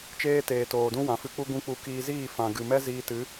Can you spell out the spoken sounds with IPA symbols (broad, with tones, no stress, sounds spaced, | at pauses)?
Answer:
t͡ʃ eː˦ t eː˨ t oː˨ d ũ˦ w ã˨ f ɨ˧ k͡p u˦ ɡ ũ˦ k͡p u˧ k iː˧ z iː˦˨ f ã˨ ɡ ɨ˨ m ɛ˦ z iː˧ t ɨ˨˦